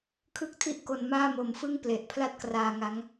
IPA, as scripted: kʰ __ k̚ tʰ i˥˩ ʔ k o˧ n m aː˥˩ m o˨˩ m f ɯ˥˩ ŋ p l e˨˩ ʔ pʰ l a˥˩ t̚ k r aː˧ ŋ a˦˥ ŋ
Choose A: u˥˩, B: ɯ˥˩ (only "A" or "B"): B